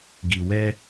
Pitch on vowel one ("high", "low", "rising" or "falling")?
low